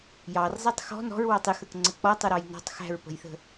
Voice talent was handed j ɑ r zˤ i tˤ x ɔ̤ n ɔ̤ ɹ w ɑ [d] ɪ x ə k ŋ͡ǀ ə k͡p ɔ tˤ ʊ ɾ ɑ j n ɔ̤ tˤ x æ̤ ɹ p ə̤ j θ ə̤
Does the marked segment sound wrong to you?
yes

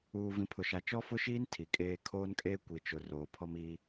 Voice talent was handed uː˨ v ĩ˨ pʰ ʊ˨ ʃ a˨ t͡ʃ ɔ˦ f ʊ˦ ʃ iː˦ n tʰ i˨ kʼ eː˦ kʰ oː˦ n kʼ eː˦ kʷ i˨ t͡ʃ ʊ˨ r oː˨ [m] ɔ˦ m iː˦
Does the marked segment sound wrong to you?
yes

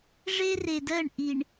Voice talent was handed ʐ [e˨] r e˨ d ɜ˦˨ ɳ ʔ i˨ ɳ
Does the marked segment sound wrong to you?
yes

